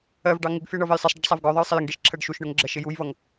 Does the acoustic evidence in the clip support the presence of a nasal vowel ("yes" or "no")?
no